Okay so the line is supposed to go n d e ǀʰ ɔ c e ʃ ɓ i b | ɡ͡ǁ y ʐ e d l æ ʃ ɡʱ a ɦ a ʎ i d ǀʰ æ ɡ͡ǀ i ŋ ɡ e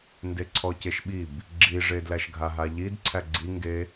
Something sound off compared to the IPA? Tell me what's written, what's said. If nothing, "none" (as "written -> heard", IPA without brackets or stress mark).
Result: y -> i